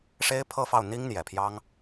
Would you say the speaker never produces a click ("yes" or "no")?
yes